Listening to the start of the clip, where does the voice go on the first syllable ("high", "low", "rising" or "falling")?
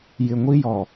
low